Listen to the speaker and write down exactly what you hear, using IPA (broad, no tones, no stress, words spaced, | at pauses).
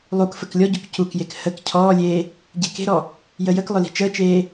lˠuk fəklʲɔɟuk cukjek hək cʰɔːlʲeː | ɟeke̤ɾɔ | jəjəklˠɵ li̤t͡ʃəːt͡ʃeː